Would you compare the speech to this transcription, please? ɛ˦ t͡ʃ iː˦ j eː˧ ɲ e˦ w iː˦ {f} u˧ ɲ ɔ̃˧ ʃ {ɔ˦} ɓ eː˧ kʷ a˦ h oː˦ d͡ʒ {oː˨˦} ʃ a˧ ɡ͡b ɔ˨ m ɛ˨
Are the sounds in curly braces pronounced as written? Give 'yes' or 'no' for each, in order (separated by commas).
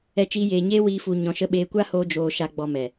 yes, no, no